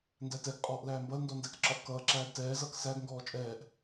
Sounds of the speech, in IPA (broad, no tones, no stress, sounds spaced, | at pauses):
n d æ t ɛ ɡ qʼ ɔː ʔ l æː m b ʌ l n d ɔ n d æ k ǁ ɒ ʔ k ʌː ǁ æː d t ɛː z ʌː k s æ ɡ ŋ ɡ ɔː t͡ʃʼ ɛː ʔ